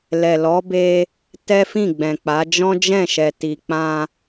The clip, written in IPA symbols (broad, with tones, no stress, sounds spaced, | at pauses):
l ɛ˨ l ɔ˨˦ b e˧ | t ɛ˦ f ĩ˦˨ ɡ͡b ɛ̃˨ k͡p a˨˦ d͡ʒ ɔ̃˦ d͡ʒ ɛ̃˦˨ ʃ ɛ˨ t i˨ k͡p ã˧